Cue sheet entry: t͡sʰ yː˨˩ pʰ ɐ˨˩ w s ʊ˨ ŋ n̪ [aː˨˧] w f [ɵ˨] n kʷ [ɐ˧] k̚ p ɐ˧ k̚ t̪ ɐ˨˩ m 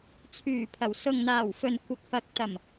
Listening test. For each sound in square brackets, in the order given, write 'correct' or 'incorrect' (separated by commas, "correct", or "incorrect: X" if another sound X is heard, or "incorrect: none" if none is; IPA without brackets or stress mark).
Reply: incorrect: aː˨˩, correct, correct